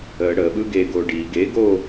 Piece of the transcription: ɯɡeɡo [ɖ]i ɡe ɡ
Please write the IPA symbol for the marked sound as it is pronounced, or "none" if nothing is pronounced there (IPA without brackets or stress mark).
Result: ɖ